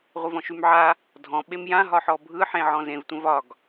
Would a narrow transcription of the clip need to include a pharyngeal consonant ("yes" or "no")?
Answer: yes